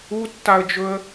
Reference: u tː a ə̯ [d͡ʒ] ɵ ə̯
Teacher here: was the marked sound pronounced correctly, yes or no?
yes